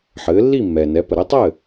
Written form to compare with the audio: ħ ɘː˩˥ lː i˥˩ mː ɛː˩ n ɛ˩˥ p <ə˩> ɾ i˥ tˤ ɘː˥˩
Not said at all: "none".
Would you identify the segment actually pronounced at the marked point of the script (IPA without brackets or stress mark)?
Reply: ə˩